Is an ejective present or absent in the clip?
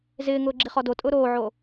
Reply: present